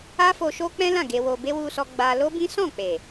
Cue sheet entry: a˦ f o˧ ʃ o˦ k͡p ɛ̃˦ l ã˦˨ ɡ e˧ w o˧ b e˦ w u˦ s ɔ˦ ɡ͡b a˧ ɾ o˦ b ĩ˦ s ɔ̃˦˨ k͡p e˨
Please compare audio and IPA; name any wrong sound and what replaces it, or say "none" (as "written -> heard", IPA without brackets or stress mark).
ɾ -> l